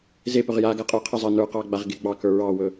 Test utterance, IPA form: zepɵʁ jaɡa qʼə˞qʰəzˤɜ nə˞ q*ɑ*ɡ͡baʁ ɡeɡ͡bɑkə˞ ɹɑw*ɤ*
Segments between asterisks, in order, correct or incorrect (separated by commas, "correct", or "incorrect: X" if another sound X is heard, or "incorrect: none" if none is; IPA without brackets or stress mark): correct, incorrect: ɵ